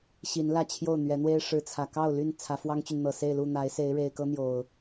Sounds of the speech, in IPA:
ɕi˨˦nlä˥˨ t͡ɕʰjo˥˨ʊ̯n̪ɥɛ˨˦n̪we˦ɪ̯ ʂɻ̩˨˦t͡sʰä˨˩ kɑ˥˨ʊ̯ly˥˨n t͡sʰä˨˦fwɑ˦ŋt͡ɕy˨n n̪ɤ˨˩se˥˨ɪ̯ lu˥˨n̪a˨˦ɪ̯ se˨˦ɪ̯ɻe˨˩ɪ̯kɤ˦ n̪jo˨˩ʊ̯

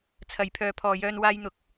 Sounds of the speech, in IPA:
t͡sʰɐ˨jpʰœː˨˧pʰɔː˨jœː˧n waː˧jn̪ʊ˨k̚

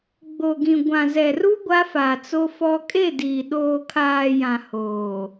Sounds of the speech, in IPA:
ɡ͡bo˨ɡĩ˨ ɡʷã˨zɛ˨ru˦ ɡʷa˦fa˨t͡so˦fɔ˦ kʼe˦˨diː˨ ɗoː˨kʰaː˨ jã˨hoː˨

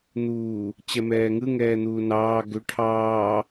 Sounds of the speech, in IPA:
n̪uː | t͡ɕɛmɛːŋɯ ŋɛːn̪uːnɑː ɡʏ ʈʰɑː

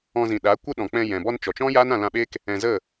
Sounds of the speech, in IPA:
ɔ̃˧ zĩ˨ɗaː˨˦ kʷə˦ɗɔ̃˨ k͡pɛ̃˧jɛ̃˨ bɔ˧nt͡ʃɔ˨t͡ʃɔ̃˦ ja˦nã˧lã˧ɓeː˦k | ɛ̃˨zə˦˨

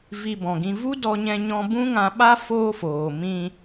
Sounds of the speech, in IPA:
vi˧bɔ̃˨ɡĩ˧ vu˦dɔ˧ɲɛ̃˧ɲɔ̃˧ bũ˦ŋã˧ɓa˦ foː˦foː˨ mĩ˧

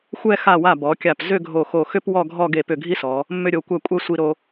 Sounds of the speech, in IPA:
xʷɛ˥˧ xa˧˩wa˧˩ bɔ˩˧kʲa˧˩p zʏ˥˧ɡʱo˧˩xo˧˩xʏ˥p wɔ˥˧ɡʱɔ˥˧ ɡe˧˩pʏ˧˩ ɡʱi˥sɔ˩˧ | mːʏ˧ɾʲo˩˧kʷɛ˧˩ kʷʼɛ˧ sʷi˧ɾo˧

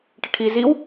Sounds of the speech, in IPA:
ʈəʈʰi ziw

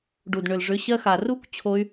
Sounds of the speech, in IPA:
ɖu˨d ɳʏ˨lʐʏ˨˦ ɕɜ˧xa˨ru˦kʷ t͡ɕʰo˧y̯

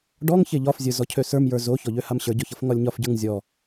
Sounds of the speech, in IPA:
ɖɔŋ çeʎɒfzʲə˞ zɔcʰøsə˞mjə˞ zoçɔʎø hamɕə˞ɟɔçʌf ŋɒlʲɲɒfɟə˞ŋ zʲɔ

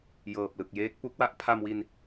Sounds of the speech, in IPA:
jɤː˨˩p̚ lɯ˨˩k̚jeː˦˥k̚pu˦˥k̚ wa˦˥ʔpʰa˧mwi˧n

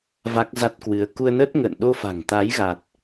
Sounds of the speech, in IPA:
va˦˥k̚za˦˥t̚kwɨ˨˦ə̯ ku˧ə̯nə˦˥t̚ŋə̰ː˧˨n ɗo˧fa̤˨˩ŋ t̪a˨˦jɣa˨˩t̚

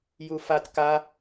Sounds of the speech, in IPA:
jufat ka

